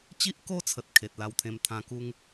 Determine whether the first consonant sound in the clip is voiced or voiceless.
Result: voiceless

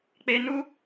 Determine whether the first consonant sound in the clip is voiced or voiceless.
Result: voiceless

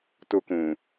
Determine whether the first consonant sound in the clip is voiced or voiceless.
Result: voiceless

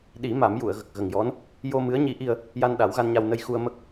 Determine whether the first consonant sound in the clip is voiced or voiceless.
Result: voiced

